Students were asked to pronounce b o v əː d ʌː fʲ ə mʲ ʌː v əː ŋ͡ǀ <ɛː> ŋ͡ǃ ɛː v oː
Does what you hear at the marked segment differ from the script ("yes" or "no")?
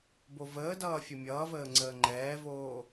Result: yes